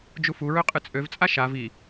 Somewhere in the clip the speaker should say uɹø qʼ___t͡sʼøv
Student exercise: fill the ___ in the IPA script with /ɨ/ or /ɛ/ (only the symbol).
ɨ